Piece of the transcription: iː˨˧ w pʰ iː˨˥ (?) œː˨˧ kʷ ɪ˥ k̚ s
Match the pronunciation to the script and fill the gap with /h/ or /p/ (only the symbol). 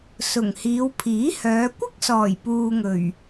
h